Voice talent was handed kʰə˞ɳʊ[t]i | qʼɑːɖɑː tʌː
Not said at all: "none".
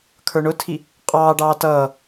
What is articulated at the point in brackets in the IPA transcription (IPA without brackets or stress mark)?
tʰ